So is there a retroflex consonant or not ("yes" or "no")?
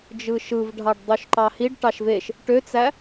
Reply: yes